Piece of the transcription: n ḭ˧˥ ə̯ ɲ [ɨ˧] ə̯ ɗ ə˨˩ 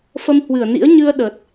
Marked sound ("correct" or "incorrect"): correct